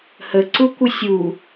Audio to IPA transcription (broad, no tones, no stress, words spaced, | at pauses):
həǀu kʷəsʲu